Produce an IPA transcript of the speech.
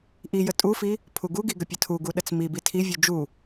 ʔ i j ə tʼ u f i | pʰ u ɡ u ɡ i ɡ ə pʲ ə tʰ u ɡ u ɗ ə t͡s m i b i tʰ i vʲ u d͡ʒ u

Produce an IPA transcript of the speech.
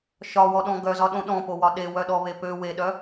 ʃ ɒ w ɔ ɗ ɔ̃ ɡ œ z ɒ ɗ õ ɗ ɔ̃ p o w ɒ ɗ e w œ ɗ ɔ β e p ø w e ɗ œ

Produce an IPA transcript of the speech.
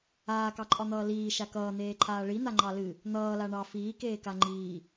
aː k ɑ ǃʼ ɒ n̪ ʌː l iː ʃ a k ʌː n̪ eː ǃʰ aː ɭ i n̪ a ŋ͡ǃ ɑ l ɨ | n̪ ʌː l a ɳ ɑ f iː k eː k a ŋ͡ǃ iː

